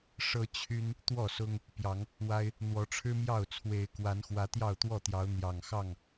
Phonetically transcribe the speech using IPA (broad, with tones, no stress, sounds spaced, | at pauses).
ʂ ɤ˦ t͡ɕʰ y˦ n | t̪ w ɔ˥˨ s ʊ˦ ŋ | p j ɑ˨˦ ŋ | w a˦ ɪ̯ | n̪ w ɔ˨˦ ʈ͡ʂʰ ɻ̩˦ m j ɑ˥˨ ʊ̯ t͡sʰ w e˨˦ ɪ̯ k w a˨˦ n x w ä˨˦ t̪ j ɑ˥˨ ʊ̯ t̪ w ɔ˥˨ t̪ j ɑ˨˦ ʊ̯ n̪ j ɑ˨˩ ŋ x ɑ˥˨ ŋ